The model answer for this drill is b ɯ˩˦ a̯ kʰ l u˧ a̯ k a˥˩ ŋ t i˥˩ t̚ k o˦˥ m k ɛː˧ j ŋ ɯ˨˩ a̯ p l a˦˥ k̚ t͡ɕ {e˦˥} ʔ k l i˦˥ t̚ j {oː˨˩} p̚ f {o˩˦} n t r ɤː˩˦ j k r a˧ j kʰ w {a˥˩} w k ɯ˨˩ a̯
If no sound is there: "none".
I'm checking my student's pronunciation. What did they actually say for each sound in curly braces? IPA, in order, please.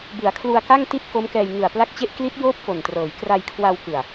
e˦˥, oː˥˩, o˨˩, a˧

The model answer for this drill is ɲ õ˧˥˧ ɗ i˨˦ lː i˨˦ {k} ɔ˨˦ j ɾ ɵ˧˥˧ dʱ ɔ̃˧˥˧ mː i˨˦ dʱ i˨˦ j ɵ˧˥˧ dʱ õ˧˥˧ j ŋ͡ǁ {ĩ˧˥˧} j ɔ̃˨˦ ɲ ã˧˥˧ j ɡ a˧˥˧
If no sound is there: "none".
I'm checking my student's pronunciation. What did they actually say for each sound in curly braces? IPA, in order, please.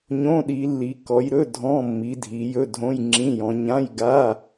k, ĩ˧˥˧

